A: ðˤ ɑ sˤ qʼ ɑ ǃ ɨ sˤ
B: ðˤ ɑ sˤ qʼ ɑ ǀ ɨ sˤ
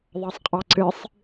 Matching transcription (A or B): B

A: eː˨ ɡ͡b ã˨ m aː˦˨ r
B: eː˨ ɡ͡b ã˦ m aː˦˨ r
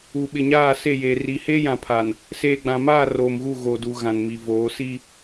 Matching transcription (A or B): A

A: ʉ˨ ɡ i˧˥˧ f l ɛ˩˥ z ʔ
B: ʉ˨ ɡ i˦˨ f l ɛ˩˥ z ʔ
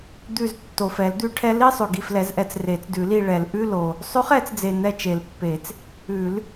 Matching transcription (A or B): B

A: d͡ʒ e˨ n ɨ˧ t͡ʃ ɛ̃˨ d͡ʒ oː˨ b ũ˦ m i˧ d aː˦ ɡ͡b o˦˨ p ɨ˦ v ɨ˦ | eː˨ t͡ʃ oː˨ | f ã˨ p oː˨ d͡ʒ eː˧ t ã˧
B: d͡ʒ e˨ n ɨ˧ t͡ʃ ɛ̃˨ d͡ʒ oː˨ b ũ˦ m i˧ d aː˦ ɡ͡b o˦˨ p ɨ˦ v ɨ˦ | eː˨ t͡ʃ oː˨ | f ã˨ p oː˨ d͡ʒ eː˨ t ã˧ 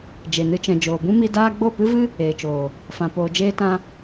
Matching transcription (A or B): A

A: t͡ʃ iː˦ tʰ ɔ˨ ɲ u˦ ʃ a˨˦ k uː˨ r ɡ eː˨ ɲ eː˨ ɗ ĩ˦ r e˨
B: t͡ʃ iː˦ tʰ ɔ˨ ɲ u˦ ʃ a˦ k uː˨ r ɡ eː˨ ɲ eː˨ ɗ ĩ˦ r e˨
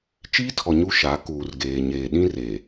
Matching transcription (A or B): A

